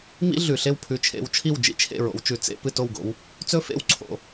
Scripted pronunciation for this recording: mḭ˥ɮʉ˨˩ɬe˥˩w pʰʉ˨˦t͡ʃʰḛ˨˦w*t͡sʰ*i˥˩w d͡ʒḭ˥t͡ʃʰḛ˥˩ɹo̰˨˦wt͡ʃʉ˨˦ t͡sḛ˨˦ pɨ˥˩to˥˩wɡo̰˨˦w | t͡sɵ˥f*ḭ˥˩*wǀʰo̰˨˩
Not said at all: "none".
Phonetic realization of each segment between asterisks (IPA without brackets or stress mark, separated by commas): t͡ʃʰ, ḛ˥˩